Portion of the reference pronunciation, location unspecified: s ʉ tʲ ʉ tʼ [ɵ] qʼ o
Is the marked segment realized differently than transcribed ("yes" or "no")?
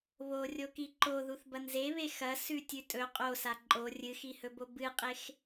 no